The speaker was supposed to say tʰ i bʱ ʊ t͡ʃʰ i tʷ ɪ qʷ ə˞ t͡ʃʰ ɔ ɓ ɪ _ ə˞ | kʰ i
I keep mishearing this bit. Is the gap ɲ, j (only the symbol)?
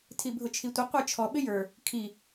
j